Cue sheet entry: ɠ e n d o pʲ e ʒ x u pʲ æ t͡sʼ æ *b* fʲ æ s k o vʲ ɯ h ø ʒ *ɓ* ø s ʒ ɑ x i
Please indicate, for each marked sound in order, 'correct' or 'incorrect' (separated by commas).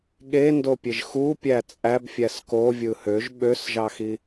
correct, correct